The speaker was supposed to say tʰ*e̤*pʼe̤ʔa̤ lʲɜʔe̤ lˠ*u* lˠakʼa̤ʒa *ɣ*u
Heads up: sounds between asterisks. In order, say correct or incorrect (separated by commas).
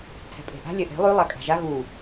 incorrect, incorrect, correct